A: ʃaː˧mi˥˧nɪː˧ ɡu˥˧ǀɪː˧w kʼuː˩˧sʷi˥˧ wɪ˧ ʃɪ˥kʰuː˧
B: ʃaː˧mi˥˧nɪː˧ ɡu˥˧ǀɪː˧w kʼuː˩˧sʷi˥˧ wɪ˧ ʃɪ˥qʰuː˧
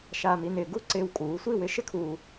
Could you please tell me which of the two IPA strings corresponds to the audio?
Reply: A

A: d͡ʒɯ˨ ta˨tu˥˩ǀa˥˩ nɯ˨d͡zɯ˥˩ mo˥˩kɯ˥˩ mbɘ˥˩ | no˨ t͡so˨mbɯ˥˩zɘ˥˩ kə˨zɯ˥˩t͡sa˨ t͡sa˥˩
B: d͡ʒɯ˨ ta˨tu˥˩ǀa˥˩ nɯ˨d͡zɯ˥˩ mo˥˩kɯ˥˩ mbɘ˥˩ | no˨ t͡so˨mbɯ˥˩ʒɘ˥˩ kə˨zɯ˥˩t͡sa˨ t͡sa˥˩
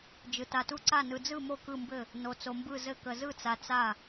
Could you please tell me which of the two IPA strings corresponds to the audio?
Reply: A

